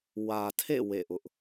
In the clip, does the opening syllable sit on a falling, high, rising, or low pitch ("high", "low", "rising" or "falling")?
low